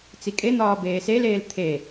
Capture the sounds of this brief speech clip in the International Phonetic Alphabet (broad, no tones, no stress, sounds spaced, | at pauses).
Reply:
t͡s i kʼ e n̪ ɒː b eː s e l eː l t̪ʰ e